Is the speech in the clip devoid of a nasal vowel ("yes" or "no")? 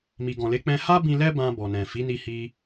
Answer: no